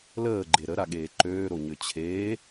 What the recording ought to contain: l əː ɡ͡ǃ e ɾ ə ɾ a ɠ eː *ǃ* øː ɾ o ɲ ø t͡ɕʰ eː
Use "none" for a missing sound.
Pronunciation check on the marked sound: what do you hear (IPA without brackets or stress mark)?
ǃ